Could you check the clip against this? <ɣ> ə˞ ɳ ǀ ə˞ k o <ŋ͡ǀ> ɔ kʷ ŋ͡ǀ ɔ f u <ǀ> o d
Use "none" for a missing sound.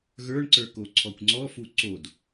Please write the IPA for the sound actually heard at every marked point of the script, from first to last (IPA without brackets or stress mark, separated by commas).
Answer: ɣ, ǀʰ, ǀ